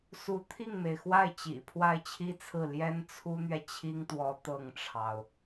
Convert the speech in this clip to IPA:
su˧˥t̪ʰi˥˩ŋme˩ɪ̯xwa˥˩ɪ̯ t͡ɕḭ˨˩pʰwa˥˩ɪ̯t͡ɕʰi˥t͡sʰɹ̩˥˩ ljɛ˥nt͡sʰu˥n̪ɥɛ˨ t͡ɕʰi˥ŋt̪wɔ˧˥ t̪ɤ˥˩ŋʈ͡ʂʰɑ˩ʊ̯

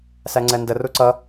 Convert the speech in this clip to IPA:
sæŋ͡ǀɛndə ruǀʌ

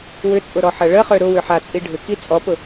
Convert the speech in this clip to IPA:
wʏt͡sʼʊ ɾɔħɐɭəχø ɾʊwʏ ħat͡sʼi ɖʱʏki t͡sʼɔpʊ

